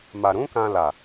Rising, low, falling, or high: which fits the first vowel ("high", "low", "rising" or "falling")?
low